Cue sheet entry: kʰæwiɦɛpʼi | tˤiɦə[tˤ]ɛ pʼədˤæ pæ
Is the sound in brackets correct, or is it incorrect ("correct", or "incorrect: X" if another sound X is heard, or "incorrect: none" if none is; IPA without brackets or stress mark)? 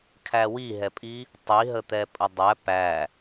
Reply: incorrect: t̪